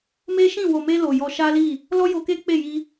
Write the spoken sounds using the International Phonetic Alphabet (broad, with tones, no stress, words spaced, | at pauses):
me˦ʃĩ˦˨ wo˨me˧ lo˨jɔ˧ʃa˦li˦˨ | lɔ˦jo˧ke˦ k͡pe˦˨ji˧